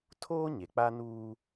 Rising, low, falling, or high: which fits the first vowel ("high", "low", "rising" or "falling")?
high